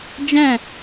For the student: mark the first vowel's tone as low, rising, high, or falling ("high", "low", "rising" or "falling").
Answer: falling